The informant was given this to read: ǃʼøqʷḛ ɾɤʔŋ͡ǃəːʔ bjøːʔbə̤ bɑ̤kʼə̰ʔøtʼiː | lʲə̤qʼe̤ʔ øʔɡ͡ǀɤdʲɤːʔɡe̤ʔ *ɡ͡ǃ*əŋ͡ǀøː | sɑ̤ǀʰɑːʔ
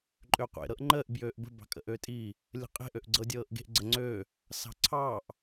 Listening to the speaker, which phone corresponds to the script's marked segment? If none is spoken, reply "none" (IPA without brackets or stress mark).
ɡ͡ǀ